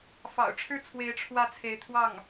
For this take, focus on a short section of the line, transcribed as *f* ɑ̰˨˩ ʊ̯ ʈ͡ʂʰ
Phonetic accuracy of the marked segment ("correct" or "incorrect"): correct